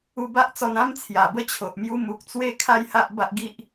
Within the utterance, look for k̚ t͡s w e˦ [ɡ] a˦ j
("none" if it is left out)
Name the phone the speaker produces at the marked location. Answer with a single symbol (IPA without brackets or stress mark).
kʰ